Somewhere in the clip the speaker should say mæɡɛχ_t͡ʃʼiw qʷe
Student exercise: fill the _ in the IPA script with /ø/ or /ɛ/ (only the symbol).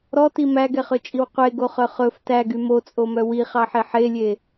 ø